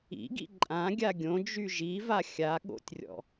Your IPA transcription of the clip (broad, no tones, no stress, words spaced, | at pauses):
ḭɡḭ ǃʼã ɡʲaɡʲõd͡ʒy ʒiva xʲa ɠo̰tʲrʲɔ̰